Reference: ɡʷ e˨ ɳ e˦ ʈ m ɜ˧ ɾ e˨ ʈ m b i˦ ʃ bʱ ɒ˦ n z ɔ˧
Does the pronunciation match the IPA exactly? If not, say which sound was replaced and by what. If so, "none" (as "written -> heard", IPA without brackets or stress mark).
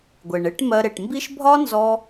none